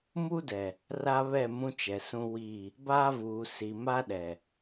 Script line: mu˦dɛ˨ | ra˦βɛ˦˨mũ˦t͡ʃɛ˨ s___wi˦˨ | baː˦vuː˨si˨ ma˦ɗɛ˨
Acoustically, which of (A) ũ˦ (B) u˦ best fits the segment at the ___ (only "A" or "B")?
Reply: A